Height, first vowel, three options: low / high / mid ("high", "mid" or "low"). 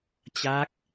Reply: low